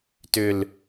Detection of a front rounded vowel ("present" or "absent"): present